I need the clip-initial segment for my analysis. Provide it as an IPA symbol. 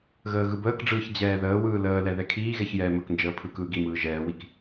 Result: ɣ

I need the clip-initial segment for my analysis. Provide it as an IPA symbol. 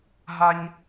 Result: ɦ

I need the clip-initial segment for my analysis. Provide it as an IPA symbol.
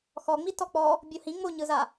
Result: x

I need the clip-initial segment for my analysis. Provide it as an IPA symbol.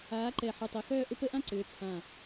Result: aː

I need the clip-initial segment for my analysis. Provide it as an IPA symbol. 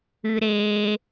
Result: ɨ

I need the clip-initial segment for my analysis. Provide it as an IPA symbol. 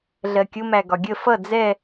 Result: ɮ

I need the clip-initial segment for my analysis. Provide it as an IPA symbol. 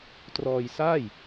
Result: t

